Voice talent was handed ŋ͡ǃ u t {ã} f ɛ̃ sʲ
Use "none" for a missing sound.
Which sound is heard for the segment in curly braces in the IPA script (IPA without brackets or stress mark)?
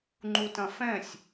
ɐ̃